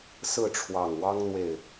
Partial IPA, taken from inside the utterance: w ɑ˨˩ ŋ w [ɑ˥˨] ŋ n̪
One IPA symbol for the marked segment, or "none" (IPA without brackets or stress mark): ɑ˦